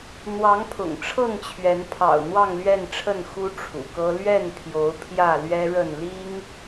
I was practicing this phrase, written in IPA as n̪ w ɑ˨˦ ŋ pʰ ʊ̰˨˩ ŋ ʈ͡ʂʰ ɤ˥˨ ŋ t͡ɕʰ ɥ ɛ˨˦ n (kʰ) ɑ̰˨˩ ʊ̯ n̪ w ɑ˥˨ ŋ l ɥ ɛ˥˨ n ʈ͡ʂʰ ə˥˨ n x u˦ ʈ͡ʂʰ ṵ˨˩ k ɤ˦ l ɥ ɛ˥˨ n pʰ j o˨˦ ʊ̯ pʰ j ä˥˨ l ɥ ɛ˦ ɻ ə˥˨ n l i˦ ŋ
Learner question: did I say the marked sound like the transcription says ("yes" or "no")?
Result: no